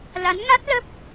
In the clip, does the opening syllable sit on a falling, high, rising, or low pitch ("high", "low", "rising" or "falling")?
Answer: rising